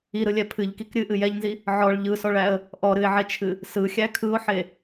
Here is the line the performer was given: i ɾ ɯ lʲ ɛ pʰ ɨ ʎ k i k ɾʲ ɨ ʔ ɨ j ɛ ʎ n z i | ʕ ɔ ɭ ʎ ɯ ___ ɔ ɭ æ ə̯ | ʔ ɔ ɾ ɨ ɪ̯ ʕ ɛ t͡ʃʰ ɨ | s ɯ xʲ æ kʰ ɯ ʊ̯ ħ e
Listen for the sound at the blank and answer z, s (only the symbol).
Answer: s